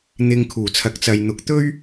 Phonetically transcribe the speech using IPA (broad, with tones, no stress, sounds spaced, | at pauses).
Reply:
n̪ ɪ˧ ŋ kʰ uː˨˩ t͡sʰ ɐ˨˥ k̚ t͡s ɐ˨ j n̪ ʊ˨ k̚ t̪ ɵ˥ ɥ